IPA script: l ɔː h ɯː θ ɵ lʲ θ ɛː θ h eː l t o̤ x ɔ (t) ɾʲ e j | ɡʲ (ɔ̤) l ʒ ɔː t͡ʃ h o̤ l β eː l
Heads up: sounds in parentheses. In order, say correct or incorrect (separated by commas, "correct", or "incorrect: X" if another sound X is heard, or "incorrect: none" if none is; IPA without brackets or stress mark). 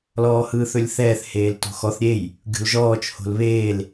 incorrect: θ, incorrect: o̤